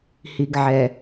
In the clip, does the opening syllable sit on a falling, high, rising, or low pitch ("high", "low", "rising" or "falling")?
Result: low